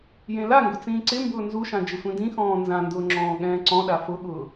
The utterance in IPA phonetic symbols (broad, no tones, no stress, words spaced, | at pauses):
jẽlaŋɡʊ t͡sĩːǀɪmbʊː nzuʃã d͡ʒɪsʷĩdĩxɔ̃ː nzãndʊː ŋ͡ǁɔ̃ːɠɛ̃ːǀɔ̃ɗa fʊɠʊː